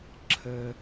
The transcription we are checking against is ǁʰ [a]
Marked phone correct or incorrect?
incorrect